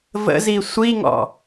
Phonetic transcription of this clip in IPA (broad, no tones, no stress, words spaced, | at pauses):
və̰zi sʷiŋɔ̰